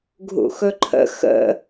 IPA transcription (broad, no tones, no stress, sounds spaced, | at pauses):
ɡʱ ṵ x ɵ ǃʰ ə̰ x ə̰